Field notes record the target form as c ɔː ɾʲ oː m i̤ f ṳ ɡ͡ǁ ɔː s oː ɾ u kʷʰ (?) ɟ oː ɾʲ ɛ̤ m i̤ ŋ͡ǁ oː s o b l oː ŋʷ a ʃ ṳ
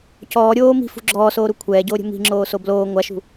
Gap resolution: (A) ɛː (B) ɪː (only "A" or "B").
A